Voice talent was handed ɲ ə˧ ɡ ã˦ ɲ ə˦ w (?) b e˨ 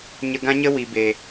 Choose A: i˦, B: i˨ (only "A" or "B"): B